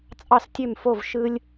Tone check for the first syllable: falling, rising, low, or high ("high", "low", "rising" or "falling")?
falling